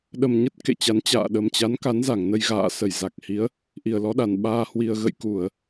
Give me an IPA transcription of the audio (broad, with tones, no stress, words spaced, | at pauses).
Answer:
ɗə˨˩mɲə˦˥t̚ kḛ˧˨t͡ɕa˨˦n t͡ɕa̰ː˧˨ɗə˨˩mt͡ɕa˨˦n ka˨˦nza˧˩ŋnə˧j ɣa̰ː˧˨ sə˧˩jza˨˩k̚ hi˨˦ə̯ | ʔi˨˩ə̯lɔ˨˦ɗa˨˩n ɓaː˧hwi˧ə̯ ɣə̰˧˨jku˧˩˨ə̯